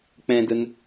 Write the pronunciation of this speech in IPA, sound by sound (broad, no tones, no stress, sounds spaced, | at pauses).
k͡p ɛ̃ d ə n